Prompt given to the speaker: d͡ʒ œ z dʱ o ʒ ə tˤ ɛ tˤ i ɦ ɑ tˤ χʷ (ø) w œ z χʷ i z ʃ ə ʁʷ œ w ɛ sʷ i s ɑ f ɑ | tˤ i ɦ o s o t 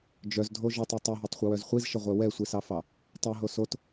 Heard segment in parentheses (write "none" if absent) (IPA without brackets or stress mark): ə